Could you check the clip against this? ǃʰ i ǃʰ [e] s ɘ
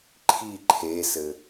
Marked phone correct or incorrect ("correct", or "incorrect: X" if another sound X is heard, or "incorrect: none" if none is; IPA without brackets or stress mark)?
correct